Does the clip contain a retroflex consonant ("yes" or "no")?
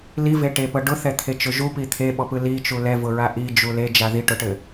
yes